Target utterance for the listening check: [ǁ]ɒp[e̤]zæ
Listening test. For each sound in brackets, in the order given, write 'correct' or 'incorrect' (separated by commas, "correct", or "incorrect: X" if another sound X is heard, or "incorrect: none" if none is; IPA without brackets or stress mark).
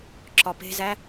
correct, correct